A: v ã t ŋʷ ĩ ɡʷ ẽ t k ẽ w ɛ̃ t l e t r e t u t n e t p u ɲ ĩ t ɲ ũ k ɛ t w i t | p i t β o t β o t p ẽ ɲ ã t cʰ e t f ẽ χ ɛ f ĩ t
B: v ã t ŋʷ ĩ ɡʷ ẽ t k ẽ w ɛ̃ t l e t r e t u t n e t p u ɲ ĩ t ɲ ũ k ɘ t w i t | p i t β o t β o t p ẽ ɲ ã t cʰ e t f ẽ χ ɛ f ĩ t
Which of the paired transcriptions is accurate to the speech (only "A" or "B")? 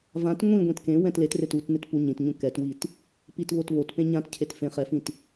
A